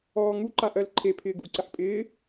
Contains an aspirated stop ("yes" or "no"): yes